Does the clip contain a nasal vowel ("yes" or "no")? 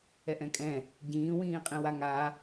yes